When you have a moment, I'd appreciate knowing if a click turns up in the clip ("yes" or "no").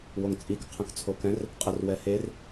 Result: no